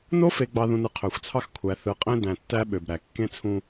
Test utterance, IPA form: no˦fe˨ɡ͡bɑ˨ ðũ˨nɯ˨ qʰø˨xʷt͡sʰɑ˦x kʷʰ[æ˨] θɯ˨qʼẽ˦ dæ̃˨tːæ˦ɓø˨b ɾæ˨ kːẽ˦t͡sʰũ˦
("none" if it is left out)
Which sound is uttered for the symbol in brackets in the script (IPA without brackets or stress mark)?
æ˨